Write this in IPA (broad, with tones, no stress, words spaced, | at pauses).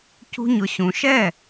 cṳ˦ɲʊ˧ ɕũ˨ʃɛ˦˨